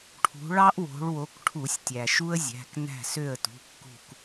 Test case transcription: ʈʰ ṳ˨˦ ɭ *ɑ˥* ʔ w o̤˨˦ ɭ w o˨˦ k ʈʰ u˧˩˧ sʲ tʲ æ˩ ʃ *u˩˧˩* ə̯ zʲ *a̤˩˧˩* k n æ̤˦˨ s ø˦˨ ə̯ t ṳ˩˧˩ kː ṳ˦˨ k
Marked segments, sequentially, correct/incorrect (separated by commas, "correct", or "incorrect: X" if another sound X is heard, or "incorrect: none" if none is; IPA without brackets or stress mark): correct, incorrect: u˥, incorrect: æ̤˩˧˩